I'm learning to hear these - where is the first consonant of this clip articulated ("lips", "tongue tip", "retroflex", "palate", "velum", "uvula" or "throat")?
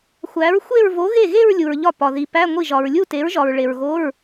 velum